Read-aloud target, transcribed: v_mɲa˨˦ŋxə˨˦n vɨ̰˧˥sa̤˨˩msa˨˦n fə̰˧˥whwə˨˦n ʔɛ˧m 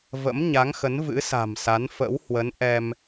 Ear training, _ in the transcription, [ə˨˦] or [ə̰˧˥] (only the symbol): ə̰˧˥